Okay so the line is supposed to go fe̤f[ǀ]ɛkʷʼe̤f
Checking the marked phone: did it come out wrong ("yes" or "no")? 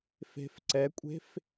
no